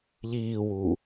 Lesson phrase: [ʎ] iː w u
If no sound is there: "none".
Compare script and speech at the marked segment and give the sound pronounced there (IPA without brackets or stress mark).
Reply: ʎ